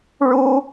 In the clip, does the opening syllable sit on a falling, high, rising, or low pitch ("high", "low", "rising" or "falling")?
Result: high